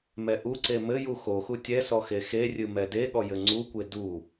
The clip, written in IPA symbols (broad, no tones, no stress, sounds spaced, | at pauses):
m ɛ ʔ u ǀ e m ɘ j u x o x u tʲ ɛ s ɔ x e x e rʲ ɨ m ɛ d e ɠ ɔ j ɘ ŋ͡ǀ u kʷ e d u